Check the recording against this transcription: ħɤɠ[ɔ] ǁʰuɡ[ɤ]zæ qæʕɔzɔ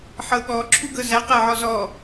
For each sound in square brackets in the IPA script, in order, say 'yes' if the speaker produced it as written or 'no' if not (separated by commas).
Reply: yes, yes